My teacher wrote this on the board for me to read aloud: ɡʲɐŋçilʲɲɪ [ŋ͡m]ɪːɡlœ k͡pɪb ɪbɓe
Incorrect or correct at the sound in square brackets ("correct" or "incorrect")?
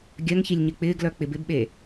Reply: incorrect